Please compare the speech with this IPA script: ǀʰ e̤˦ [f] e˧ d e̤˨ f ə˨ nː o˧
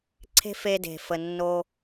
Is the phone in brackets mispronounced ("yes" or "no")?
no